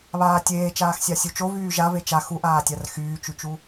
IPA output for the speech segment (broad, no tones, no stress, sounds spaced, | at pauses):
β aː tʲ eː t͡ʃ aː x sʲ a sʲ u t͡ʃ o v yː ʒ a v e t͡ʃ a x u ʔ aː tʲ a r x yː t͡ʃ y t͡ʃ u